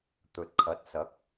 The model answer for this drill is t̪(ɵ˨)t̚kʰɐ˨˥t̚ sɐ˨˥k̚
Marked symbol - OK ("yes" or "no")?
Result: yes